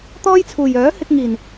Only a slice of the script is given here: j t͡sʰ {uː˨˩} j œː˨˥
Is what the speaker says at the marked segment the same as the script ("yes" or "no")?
yes